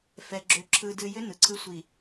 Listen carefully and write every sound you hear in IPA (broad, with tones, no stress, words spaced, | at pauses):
fɛ˨ɡ͡ǁʏ˨ ǁʰɯ˨dɨ˨jʏ˦ nɯ˨ ǀʰɯ˦sʷi˨